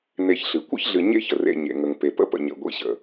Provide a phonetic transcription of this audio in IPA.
n e˨ ç ɬ ɨ˩ kʷ ə̰˥ ç ɮ ɨ˨ ɲ ḛ˦ ç ə˩ r ḛ˨ ɲ ḛ˩ ŋ ə˩ ŋ p e˩ p ə̰˦ p ə̰˨ ɲ ə̰˩ ɡʷ ḭ˨ ɕ ə̰˩

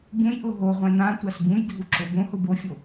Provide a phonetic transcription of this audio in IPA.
b ũ j ʔ ʊ ɦ o ʁʷ ɛ̃ n ã tʷ a s b ũ j dʱ u ǁ o b õ h ʊ b o fʲ o

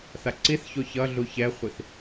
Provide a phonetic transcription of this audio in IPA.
θ a ǀ i θ ç o ç ʌ ɮ u ç ɛ χʷ i θ

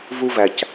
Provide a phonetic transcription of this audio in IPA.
v u˦ v æ˨ c

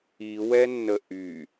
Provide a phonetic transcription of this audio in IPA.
i w ɛ nː ə ʔ y

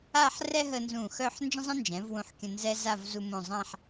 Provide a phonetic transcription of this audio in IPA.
a˥˧ ħ r ɛ˥ ɦ ə˧ n z ũ˧˩ x œ˥˧ ħ n d͡ʒ ə̃˥ zˤ ə̃˥ n d͡ʒ ɛ̃˩˧ v w ũ˧ ħ kʲ ə̃˧ n z ɛ˥ z a˥˧ v z u˧ m õ˧˩ zˤ ã˥˧ ħ

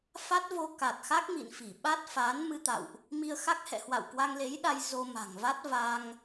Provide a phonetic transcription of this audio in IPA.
f a˦˥ t̚ v o˧ k a˨˩ t̚ x a˦˥ k̚ m ḭ˧˨ n f i˧˩ ɓ a˦˥ t̚ f aː˨˦ n m ɨ˧ t̪ a̰˧˨ w ʔ | m i˧ ə̯ x a˦˥ k̚ h ɛ̰˧˨ h w a̰˧˨ w k w a˧ ŋ l e˨˦ j ɗ a˧ j z o˧ m a̤˨˩ ŋ v a˦˥ t̚ v a˧ ŋ

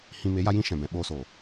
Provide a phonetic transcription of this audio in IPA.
h ĩ˧ m e˨˦ j a˦ j ĩ˦ ʃ ɛ̃˨ b ɛ̃˨ ɓ oː˧ s oː˨

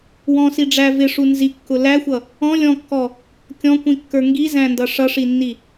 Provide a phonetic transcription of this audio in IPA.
w ɔ̃ s i ɖ͡ʐ æ v ɪ ʂ u n z i kː ʊ l æ xʷ ʌ | ɔ̃ lʲ ɔ̃ kː ɔ | kʲ ɔ̃ kʷ ĩ kː ə˞ ŋ ɡ i z æ̃ n d ʌ ʂ ʌ ʂ i nː i

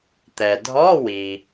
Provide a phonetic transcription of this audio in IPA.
t̪ ɛ˩ dʱ ɔ˧˥˧ w i˩

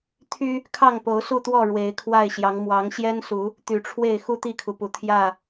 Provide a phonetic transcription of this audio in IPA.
t̪ʰ y˦ | kʰ ɑ˥˨ ŋ p o˨˦ ʊ̯ s u˥˨ t̪ w ɔ˥˨ ɻ w e˨˦ ɪ̯ kʰ w a˥˨ ɪ̯ ɕ j ɑ˨˦ ŋ m w ɑ˨˦ ŋ ɕ j ɛ˦ n s u˨˦ | t̪ y˨˩ ʈ͡ʂʰ w e˥˨ ɪ̯ x u˥˨ t̪ i˥˨ kʰ u˩ p u˨˩ t̪ʰ j ä˥˨

